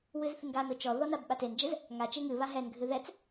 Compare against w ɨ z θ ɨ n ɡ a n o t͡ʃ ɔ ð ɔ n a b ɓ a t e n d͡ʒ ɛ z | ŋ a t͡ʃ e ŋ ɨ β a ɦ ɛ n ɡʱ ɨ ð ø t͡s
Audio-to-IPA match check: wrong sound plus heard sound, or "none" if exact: ø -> ɛ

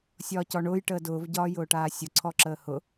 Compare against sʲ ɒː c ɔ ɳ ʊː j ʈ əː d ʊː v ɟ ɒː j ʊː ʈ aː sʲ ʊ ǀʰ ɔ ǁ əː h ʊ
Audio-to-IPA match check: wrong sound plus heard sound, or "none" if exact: none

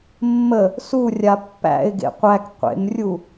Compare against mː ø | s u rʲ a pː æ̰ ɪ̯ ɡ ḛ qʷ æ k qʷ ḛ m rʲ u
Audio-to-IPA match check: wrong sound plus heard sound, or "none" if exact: ø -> ə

